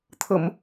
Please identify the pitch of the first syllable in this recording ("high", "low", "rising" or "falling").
low